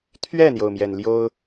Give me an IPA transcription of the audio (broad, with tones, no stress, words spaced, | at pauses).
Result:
t̪ʰɥɛ˥˩n̪jo˩ʊ̯mjɛ˩n ljo˥ʊ̯